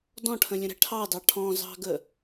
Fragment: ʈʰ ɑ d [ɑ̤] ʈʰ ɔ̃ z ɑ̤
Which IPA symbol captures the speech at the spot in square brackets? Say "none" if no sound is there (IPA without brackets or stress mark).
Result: ɑ